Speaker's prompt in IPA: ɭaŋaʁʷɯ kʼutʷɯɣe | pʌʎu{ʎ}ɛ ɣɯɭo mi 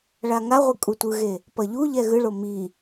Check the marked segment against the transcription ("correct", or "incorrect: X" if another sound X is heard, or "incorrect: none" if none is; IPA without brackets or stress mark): correct